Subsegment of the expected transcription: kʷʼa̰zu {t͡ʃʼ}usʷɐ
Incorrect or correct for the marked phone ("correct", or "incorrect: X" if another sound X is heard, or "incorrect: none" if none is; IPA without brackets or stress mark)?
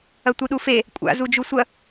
incorrect: d͡ʒ